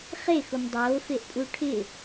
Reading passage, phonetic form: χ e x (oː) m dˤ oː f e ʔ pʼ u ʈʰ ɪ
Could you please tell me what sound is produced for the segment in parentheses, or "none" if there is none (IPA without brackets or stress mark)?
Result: o